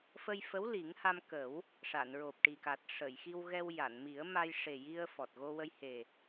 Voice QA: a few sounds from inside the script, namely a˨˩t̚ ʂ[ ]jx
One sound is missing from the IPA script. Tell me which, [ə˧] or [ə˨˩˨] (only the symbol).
ə˨˩˨